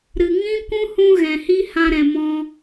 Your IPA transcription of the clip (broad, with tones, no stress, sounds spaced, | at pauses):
ɾ ɨ˨ ŋ ĩ˦ kʷ ũ˦ h ũ˦ ɣ ɛ̃˨ h i˦ h ã˧ ɾ ɛ̃˨ m ɔ̃˧